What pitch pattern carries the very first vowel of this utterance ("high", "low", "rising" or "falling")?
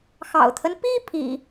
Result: low